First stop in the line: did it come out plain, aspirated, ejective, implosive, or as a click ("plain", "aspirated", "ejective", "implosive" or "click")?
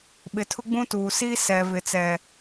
implosive